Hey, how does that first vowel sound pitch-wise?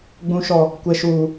high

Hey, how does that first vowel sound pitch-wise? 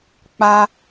high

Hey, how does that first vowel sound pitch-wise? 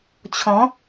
rising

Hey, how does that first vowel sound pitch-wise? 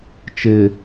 low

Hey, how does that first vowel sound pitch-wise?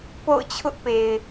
falling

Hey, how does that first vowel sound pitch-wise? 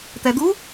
low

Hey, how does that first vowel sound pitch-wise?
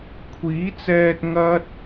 rising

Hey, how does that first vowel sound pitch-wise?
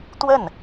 falling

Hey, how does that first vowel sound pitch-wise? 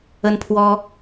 high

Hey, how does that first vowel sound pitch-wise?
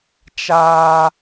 high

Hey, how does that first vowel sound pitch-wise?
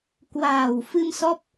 low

